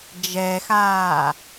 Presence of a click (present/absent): absent